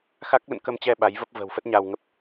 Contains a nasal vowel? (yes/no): no